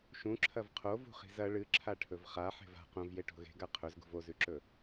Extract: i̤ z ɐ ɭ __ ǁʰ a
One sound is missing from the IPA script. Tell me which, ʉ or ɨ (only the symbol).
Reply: ɨ